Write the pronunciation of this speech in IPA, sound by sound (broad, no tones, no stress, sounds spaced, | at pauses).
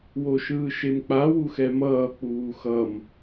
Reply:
w o ʃ ɯː ʃ e m k͡p a w u x ɛ m ʌː k͡p uː x ʌ m